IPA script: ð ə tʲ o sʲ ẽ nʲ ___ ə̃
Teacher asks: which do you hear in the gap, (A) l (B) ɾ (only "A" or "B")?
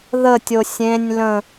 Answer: A